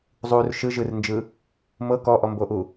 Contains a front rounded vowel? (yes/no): no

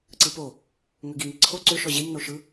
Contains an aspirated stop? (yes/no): yes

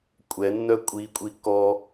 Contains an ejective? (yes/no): yes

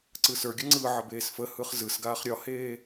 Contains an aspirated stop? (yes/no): no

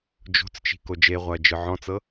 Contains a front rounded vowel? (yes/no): no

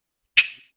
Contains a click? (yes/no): yes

